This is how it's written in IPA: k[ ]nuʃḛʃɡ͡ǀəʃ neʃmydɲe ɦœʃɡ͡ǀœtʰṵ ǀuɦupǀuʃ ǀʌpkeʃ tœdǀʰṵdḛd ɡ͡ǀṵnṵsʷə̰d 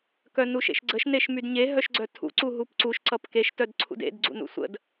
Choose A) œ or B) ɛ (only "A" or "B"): A